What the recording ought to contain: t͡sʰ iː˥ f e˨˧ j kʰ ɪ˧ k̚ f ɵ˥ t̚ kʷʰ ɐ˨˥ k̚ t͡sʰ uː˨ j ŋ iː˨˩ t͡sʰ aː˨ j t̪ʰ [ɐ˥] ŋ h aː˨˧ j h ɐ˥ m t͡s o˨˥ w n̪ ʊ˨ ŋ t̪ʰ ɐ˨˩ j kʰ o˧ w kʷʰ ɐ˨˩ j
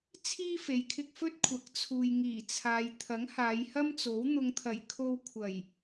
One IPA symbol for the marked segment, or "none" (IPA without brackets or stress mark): ɐ˨˥